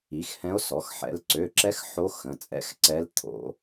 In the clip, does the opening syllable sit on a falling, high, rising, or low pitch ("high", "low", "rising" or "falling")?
rising